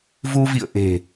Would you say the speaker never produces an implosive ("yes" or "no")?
yes